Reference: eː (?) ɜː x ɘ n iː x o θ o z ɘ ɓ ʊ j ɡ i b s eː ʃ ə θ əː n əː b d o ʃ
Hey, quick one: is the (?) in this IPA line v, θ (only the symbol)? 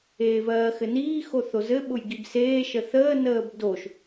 v